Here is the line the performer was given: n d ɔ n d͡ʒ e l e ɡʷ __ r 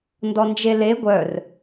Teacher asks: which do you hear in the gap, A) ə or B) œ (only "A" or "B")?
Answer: B